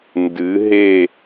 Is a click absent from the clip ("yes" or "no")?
yes